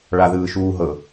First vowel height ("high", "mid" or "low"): low